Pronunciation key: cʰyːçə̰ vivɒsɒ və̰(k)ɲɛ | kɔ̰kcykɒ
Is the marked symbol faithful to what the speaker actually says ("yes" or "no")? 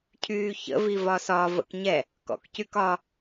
yes